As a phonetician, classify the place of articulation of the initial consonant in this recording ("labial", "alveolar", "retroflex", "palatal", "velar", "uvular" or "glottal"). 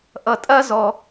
glottal